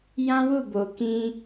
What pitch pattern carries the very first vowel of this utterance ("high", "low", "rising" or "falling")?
high